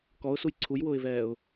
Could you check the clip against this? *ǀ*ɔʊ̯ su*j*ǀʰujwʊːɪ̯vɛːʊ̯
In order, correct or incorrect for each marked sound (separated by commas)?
incorrect, correct